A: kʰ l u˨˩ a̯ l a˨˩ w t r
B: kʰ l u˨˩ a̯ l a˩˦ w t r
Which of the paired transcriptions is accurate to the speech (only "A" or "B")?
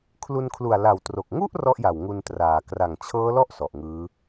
A